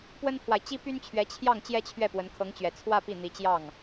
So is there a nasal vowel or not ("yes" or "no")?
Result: no